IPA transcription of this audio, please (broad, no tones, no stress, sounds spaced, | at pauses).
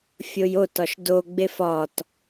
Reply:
fʲ o j o t ɒ ʃ d o ɡ͡b e f ɒ t